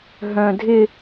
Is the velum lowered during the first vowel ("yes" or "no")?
yes